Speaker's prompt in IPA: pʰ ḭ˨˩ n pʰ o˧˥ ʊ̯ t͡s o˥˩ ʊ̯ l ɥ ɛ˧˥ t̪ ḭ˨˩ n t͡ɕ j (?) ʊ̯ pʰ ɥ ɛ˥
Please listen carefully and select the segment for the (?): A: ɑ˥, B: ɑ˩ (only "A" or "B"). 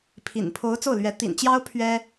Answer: A